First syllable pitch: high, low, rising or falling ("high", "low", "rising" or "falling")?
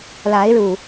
rising